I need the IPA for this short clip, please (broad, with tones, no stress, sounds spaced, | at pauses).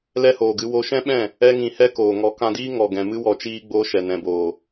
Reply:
l ɛ˦ h oː˨ ɡ ɨ˧ w o˧ ʃ ɛ̃˦ ɓ ɛ̃˦˨ | ɛ˦ ŋ ĩ˧ h ɛ˦ k oː˨ ŋ ɔ˨˦ k ã˧ d iː˦ ŋ ɔ˨ ɡ ɛ̃˨ m ɨ˦ w ɔ˧ t͡ʃ iː˦ ɡ͡b oː˧ ʃ ɛ˨ n ɛ̃˨ b oː˨